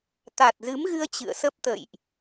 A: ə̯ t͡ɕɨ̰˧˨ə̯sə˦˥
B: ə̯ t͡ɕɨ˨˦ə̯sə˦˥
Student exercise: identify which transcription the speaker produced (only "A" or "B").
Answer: A